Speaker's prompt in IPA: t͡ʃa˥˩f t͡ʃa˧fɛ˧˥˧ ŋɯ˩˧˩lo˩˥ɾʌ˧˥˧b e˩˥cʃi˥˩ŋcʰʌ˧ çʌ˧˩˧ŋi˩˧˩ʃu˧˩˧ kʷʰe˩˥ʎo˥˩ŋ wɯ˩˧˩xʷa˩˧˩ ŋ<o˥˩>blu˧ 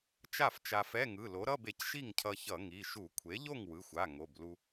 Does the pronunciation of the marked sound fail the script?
yes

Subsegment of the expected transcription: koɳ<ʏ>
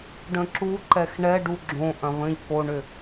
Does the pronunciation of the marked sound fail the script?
no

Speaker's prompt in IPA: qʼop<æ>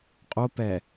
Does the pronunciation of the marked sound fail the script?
yes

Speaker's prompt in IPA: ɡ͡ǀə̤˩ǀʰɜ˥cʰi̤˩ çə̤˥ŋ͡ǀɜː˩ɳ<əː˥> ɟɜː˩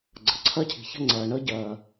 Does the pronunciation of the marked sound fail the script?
no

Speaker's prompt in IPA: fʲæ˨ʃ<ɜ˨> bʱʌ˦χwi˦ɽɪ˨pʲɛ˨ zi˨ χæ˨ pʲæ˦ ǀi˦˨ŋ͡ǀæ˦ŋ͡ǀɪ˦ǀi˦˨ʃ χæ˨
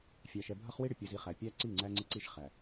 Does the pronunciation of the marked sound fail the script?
yes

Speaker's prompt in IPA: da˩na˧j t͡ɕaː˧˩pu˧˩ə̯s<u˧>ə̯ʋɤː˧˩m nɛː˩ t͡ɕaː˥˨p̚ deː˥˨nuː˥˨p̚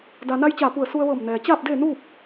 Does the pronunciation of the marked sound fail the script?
no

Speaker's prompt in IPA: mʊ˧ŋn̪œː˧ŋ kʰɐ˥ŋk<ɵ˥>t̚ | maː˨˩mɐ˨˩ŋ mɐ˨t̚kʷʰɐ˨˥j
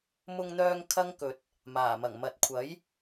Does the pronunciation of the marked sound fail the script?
yes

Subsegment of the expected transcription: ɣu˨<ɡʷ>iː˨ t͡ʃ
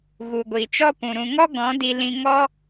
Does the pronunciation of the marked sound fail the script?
no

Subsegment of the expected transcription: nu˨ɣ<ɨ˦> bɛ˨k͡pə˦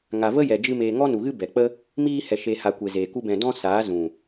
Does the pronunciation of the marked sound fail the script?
no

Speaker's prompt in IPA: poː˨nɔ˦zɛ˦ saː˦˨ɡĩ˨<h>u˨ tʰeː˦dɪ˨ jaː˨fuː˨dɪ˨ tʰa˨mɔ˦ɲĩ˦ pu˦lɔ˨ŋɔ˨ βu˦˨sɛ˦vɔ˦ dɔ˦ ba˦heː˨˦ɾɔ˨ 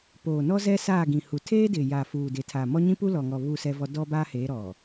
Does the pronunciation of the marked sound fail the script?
no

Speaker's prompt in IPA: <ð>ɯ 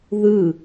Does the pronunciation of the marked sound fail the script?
no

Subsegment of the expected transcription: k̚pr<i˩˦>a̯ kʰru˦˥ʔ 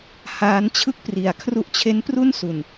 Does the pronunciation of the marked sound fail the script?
no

